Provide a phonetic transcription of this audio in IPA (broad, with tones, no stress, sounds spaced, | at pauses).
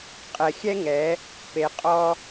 qʼ ɛ˨ xʲ ɛ˦ ŋ ɛ˨˦ | p e˨ qʼ ɔ˧